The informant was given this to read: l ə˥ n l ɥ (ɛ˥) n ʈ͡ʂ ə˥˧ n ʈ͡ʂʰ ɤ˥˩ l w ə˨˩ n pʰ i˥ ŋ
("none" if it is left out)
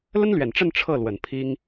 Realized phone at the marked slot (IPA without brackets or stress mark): ɛ˨˩